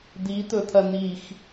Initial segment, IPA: d̪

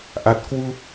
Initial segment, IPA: ʔ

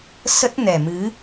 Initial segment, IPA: s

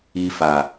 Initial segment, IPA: i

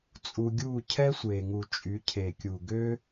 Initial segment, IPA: t͡sʼ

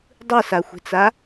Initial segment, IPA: dˤ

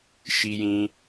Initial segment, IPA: ʃ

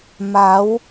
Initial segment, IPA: m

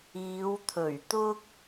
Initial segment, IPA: iː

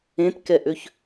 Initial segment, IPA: ẽ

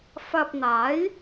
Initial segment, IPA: f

